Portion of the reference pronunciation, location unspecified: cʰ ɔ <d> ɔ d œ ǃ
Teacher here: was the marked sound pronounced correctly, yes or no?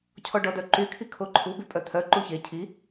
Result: no